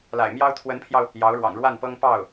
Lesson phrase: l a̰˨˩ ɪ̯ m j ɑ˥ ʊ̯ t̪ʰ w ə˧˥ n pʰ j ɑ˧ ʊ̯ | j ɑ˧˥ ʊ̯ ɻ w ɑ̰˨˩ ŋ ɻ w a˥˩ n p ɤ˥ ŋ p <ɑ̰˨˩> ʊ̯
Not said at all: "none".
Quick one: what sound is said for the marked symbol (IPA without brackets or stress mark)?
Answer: ɑ˥˩